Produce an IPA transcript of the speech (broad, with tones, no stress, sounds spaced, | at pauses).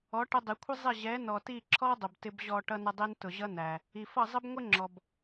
ɔ˨˦ ʈ ə˧ dˤ i˨ kʷʰ ɪ˦ zˤ ɪ˦˨ ʑ ɛ˨˦ n ɔ˨ t i˦˨ ǁʰ ɔ˦ dˤ ʊ˨ b t ɪ˧ b ʑ ɔ˧ ʈ ʌ˧ n ə˧ dˤ i˧ n t ʊ˨ ʑ ʌ˦ n æ˨ | i˨ f ʌ˦˨ zˤ ə˦ b ŋʷ ɪ˦ ŋ͡ǁ ɔ˨ b